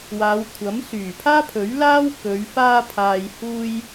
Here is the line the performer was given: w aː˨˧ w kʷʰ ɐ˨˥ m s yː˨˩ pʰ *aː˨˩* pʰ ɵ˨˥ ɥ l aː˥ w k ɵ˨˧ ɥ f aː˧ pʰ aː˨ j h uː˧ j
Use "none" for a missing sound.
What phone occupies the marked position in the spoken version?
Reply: aː˥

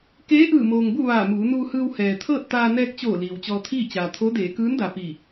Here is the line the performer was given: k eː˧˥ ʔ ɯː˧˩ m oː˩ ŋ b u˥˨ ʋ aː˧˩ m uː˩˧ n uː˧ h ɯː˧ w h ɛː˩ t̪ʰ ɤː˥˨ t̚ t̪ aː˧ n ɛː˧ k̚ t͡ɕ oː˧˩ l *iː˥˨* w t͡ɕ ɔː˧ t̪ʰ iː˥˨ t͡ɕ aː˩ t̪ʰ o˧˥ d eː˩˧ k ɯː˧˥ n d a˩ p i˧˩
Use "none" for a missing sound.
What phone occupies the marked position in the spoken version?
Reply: iː˩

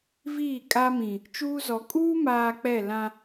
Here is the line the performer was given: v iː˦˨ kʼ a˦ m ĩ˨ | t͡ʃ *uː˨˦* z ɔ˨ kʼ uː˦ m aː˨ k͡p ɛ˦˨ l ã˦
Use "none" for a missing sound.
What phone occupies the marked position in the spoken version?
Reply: uː˦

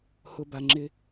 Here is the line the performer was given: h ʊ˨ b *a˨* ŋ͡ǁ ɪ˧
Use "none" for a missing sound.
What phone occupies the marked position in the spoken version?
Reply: a˨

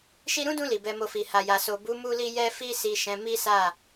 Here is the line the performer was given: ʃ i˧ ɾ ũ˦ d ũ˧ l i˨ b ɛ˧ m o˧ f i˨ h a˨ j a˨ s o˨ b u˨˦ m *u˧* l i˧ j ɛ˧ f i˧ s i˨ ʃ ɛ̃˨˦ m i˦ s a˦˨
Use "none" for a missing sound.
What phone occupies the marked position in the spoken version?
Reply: u˧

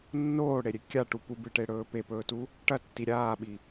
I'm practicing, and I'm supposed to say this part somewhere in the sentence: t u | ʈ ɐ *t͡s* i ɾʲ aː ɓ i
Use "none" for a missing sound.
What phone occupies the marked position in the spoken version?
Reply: tː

